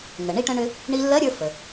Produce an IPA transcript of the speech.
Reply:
ŋə˩ ɳi˧ʈə̃˧ɳʏ˧ | ɳi˧lːɜ˧˥ɾʲə˞˧ fə˩

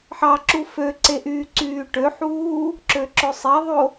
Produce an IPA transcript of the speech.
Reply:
ħɑǁu føǀe ʔyːǀyːʈøħuː | ǁøǁøsˤeðˤo

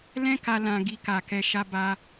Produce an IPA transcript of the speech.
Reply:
lɛ̃˦ka˧ lã˧ ɡi˧ka˨kɛ˧ ʃa˧ ba˧

